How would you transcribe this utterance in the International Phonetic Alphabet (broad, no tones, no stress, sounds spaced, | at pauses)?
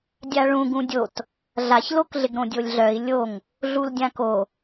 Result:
dʲ a ɭ ũ ɡ ũ dʲ o t | ɮ a ç l o k ɮ ɪ ɡ ɾ õ dʲ o lʲ ɮ œ i̯ lʲ o ŋ | ɮ u l dʲ ã k o